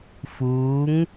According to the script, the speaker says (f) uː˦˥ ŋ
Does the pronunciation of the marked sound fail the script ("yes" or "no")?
no